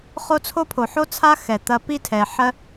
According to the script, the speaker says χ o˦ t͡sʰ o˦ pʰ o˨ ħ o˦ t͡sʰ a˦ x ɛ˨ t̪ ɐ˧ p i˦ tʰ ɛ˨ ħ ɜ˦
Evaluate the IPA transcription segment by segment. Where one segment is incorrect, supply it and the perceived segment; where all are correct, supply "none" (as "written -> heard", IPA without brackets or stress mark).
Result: none